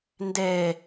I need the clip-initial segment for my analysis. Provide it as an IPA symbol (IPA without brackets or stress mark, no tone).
n